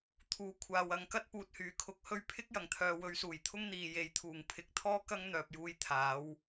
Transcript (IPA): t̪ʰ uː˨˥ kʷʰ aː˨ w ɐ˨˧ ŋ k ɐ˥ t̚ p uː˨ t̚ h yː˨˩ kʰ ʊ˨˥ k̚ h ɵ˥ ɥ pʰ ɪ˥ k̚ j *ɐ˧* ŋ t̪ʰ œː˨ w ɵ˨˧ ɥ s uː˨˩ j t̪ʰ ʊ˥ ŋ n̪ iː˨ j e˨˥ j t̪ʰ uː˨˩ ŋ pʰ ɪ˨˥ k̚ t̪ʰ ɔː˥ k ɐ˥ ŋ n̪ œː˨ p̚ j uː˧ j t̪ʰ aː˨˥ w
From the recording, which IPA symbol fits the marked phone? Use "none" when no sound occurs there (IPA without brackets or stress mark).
ɐ˨˩